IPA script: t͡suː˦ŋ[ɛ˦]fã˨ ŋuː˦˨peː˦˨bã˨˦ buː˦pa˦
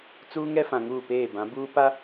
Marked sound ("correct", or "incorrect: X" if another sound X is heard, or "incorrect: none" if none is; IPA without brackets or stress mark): correct